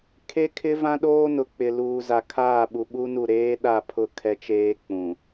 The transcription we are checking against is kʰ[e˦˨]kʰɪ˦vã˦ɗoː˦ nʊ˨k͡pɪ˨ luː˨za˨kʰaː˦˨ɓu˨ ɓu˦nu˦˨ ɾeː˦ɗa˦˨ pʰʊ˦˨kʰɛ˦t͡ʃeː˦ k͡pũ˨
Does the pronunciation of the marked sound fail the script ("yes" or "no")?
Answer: yes